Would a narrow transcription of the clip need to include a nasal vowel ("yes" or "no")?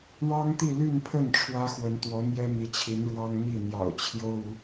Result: no